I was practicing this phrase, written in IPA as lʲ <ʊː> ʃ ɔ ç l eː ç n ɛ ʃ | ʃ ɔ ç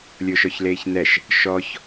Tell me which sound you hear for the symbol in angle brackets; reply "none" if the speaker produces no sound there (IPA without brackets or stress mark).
ʊː